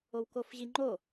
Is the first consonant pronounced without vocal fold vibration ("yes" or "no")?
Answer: no